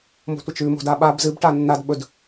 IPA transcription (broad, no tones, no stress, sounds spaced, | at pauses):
m o̤ tʷ ɐ t͡ʃ ʉ m o̤ d a ɓ a b z ɨ b ʈ a nː a d ɓ ɵ d